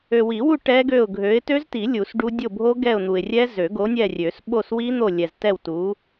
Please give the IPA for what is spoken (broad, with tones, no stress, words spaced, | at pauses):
ø˨wi˨˩˦wu˦˨ ʈɛ˦˥ɡø˦˨ʊ̯ ɡʱø˨˥ɪ̯ tø˦˥zti˨˩˦lʲu˨˩˦s ɖu˦˥ dʲo˦˨bʱo˦˥ ɡɛ˦˨ʊ̯n̪u˨ɪ̯rʲɛ˦˥ zø˨˩˦ ɡo˨˥nʲɛ˦˨rʲø˨˩˦s ɓo˦˨swi˦˥n̪o˦˨ lʲɛ˨ztɛ˦˨wtu˨˥